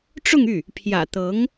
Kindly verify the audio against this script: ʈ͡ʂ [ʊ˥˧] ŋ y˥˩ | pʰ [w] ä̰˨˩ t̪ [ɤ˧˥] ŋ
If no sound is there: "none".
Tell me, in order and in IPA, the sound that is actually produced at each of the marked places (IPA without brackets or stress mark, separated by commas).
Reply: ʊ˥˧, j, ɤ˧˥